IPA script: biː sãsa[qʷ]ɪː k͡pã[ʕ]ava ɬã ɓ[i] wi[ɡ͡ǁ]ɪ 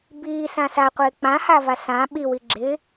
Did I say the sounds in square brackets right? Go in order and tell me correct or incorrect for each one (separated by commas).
correct, incorrect, correct, correct